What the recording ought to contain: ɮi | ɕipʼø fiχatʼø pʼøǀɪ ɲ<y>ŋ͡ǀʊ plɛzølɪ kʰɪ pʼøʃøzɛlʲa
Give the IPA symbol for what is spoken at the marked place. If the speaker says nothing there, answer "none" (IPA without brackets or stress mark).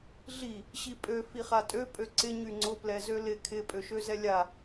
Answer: y